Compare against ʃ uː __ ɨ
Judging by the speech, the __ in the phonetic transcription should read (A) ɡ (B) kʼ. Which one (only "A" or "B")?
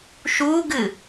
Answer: A